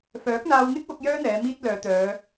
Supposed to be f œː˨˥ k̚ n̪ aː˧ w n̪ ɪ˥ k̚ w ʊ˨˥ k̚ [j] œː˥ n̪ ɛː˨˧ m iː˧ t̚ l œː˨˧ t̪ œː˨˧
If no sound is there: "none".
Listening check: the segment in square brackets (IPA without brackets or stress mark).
j